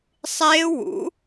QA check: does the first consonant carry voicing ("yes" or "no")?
no